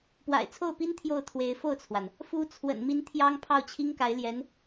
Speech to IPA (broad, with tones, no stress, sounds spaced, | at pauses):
p w a̰˨˩ ɪ̯ t͡sʰ o˥˩ ʊ̯ p i˥ n t̪ʰ j o˥˩ ʊ̯ t̪ʰ w e˧˥ ɪ̯ f o˥˩ ʊ̯ t͡sʰ w a˩ n | f u˧˥ t͡sʰ w ə̰˨˩ n m i˧˥ n t̪ʰ j ɑ˥ ŋ pʰ ɑ˥˩ ʊ̯ t͡ɕʰ i˥ ŋ k a˧˥ ɪ̯ l j ɛ˧˥ n